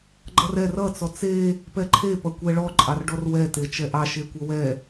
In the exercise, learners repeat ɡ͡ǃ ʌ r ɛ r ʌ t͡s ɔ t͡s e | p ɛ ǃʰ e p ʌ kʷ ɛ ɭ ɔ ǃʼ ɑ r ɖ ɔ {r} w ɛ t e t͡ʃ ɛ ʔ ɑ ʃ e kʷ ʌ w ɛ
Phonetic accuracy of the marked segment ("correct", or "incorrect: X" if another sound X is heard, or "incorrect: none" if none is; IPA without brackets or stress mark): correct